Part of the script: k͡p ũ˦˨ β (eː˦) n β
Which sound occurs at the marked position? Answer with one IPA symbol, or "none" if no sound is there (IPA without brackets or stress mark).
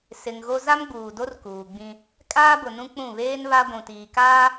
eː˦